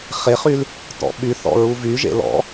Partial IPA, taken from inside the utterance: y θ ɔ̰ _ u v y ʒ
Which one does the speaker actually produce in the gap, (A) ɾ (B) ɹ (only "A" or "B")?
B